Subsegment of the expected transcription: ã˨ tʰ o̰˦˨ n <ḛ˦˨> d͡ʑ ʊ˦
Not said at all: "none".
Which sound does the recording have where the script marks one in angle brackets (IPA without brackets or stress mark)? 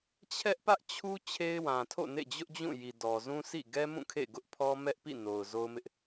ḛ˦˨